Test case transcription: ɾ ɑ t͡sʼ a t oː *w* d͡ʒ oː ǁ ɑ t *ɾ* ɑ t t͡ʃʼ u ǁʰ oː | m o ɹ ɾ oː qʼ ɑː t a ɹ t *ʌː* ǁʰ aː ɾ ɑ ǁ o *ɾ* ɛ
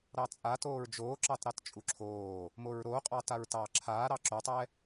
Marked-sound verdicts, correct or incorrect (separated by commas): incorrect, correct, incorrect, incorrect